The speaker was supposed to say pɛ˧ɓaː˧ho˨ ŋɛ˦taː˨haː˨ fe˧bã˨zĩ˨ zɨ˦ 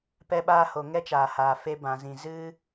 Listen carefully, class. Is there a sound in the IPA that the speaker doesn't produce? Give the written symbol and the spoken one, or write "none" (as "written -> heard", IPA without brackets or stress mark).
t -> t͡ʃ